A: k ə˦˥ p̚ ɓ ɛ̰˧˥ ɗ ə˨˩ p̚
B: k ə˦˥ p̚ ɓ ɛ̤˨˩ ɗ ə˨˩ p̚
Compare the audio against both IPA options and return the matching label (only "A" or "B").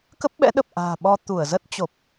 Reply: A